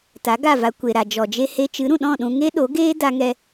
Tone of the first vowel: rising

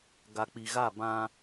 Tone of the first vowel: low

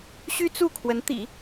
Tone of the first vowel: high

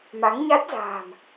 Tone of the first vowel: rising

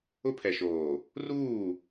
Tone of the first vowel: high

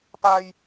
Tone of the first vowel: low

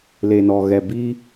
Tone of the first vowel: low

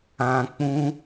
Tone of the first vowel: high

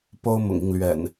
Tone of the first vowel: high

